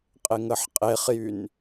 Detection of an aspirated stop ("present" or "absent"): absent